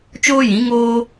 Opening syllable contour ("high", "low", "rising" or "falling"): high